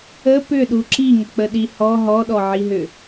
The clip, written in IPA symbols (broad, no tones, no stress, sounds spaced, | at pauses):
ə p ʏ ɗ u ǁ i ŋ ə k͡p ə ɗ i h ɔ ɦ ɔ ɗ ɔ ʕ i ɦ ʏ